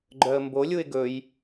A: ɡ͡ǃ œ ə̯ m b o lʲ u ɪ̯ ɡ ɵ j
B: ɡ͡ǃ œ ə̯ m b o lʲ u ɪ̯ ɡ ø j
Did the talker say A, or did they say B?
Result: A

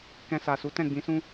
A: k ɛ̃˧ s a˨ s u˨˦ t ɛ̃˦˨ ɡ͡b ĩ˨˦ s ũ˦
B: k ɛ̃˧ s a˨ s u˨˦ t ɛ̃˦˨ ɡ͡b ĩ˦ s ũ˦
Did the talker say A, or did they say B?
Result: A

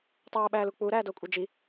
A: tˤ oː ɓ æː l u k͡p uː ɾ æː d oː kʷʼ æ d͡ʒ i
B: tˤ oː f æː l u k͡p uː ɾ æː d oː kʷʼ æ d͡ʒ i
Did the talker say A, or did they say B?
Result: A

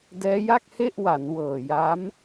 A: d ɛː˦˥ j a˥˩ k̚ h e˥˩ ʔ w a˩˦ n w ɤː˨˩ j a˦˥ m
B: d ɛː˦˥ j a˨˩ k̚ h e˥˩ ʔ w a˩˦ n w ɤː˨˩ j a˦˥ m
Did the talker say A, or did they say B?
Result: A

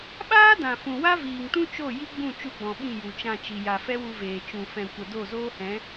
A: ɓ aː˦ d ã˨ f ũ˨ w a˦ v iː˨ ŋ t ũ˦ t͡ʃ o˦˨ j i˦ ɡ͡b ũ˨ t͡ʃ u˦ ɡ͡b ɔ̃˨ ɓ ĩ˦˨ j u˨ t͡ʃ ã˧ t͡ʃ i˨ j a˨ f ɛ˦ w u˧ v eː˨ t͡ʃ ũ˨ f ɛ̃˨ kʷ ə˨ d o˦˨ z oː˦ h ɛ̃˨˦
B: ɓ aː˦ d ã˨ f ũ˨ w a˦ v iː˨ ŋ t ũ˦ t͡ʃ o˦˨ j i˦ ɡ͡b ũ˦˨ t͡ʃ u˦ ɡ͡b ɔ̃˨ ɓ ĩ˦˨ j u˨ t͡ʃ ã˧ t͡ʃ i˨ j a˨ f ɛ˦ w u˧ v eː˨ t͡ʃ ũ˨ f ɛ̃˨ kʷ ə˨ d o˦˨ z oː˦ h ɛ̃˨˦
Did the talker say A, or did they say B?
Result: B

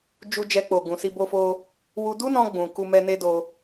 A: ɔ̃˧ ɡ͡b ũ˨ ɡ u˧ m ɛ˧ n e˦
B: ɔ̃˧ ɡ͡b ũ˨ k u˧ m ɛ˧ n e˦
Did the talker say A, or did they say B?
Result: B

